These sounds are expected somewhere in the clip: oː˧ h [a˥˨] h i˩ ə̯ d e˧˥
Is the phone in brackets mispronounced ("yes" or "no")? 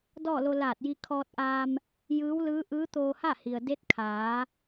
no